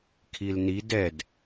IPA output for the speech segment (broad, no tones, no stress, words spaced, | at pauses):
kʰilnid ɛd